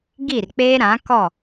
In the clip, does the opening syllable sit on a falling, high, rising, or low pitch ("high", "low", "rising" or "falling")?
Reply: falling